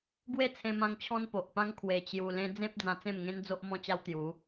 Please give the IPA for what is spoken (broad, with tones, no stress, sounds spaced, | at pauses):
ɡ w e˥˧ t͡sʰ ẽ˧ m ã˧ ŋ t͡ɕʰ ɔ̃˦ n p o˨ ʔ p ã˦ ŋ kʰ w e˧ t͡ɕ j u˧ l ẽ˦ d͡z ẽ˦ p̚ d͡z ã˧ t͡s ẽ˥˧ m ŋ ẽ˦ n d͡z o˦ ʔ m ɔ̃˧ t͡ɕ a˧ w t̪ j u˨˦